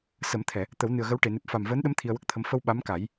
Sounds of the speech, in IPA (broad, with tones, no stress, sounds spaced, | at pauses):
s ə˨˩˦ m t̪ʰ ɛ˨˩˨ | t̪ ə˨˩˦ w n ɨ˨˩ ə̯ ɣ ə˧˥ w ʈ e˨˩˨ n ɨ˨˩ p̚ f a˨˩ m v əː˧˥ n ɗ ə˧˥ m t̪ʰ i˧ ə̯ w ə˦˥ k̚ t̪ʰ ə˧˥ m f ə˧ w ɓ a˧˥ m k a˨˩˦ j